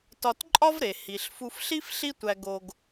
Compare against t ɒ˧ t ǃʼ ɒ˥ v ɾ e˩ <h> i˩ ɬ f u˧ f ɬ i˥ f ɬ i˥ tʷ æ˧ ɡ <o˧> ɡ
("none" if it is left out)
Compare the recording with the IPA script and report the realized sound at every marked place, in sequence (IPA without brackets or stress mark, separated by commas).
h, o˧